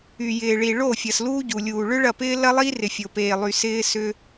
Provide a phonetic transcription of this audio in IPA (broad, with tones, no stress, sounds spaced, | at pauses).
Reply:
y˨ j ɪː˨ ɭ i˨ ɭ o˦˨ fʲ ɐ˨ s l uː˦ ɟ u˨ lʲ uː˨ ɭ ʏ˦ ɭ ɐ˦˨ p ɪː˦ l ɐ˦ lˠ iː˦ r ɪ˨ fʲ o˨ p eː˨ lˠ y˨ s ɪː˦ s ʏ˦